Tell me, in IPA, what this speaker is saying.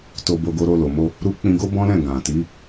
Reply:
t o˧ b o˧ ɡ o˧ ɾ o˧ l o˨ m o˧ | ɾ u˦ k͡p ĩ˧ ɡ o˦ b ɔ̃˦ l ɛ̃˦˨ ɡ ã˨ t i˨˦

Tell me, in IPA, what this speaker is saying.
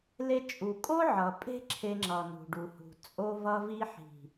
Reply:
l e˧ t͡ʃʼ u˨ kʼ o˦ ʕ ʌ˨ pʼ e̤˦ ǁʰ e˧ ŋ͡ǁ ʌ˨ n ṳ˨ ɖ u˨ h ṳ˨ t͡sʼ o˧ v ʌ˧ v i˧ ħ i̤˨

